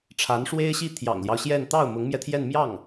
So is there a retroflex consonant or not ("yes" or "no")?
yes